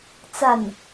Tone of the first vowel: falling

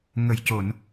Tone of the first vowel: low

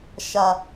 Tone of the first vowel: low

